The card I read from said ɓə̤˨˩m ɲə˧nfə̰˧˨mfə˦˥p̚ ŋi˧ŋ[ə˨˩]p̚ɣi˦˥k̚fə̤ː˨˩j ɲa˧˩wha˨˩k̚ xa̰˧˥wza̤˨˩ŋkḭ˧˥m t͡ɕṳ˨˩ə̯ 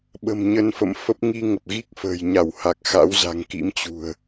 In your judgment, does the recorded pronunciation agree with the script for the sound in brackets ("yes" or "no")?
yes